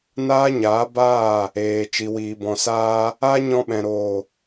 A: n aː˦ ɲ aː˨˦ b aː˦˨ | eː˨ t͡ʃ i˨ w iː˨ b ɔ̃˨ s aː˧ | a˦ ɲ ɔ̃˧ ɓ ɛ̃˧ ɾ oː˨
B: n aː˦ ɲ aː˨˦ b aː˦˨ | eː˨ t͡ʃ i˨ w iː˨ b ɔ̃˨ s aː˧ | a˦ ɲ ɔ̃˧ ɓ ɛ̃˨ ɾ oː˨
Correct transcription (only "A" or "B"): B